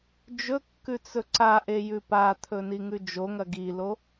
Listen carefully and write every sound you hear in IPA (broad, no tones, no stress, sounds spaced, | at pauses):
d͡ʒ ɵ kː ʉ t͡s ɵ ǀ a ʔ e j ʉ p a t̪ʰ ɵ n i ŋ ʉ d͡ʒ o ŋ ɐ ɡ i l o